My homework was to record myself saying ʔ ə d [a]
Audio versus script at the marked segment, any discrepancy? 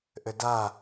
no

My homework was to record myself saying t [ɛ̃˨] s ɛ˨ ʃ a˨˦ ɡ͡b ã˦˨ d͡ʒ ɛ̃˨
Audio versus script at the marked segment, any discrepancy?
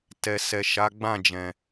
yes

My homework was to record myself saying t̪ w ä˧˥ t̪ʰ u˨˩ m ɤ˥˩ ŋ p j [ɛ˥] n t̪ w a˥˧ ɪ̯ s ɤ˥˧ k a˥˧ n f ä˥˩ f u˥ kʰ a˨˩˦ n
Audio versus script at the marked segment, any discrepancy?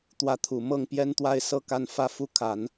no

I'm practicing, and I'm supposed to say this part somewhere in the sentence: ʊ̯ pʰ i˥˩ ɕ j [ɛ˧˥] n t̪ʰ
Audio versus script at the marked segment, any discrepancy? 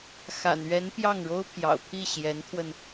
no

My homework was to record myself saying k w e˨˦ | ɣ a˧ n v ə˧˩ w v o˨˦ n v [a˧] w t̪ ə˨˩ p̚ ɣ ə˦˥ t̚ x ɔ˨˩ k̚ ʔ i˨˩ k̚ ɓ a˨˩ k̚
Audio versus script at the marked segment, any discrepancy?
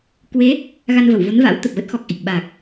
yes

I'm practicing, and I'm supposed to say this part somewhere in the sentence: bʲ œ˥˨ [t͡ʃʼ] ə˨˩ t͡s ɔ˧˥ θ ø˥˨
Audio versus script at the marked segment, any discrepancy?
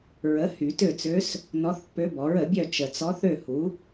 yes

